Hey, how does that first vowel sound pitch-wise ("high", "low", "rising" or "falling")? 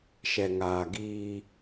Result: low